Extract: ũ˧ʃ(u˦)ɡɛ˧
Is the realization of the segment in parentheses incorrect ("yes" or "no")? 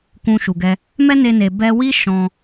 yes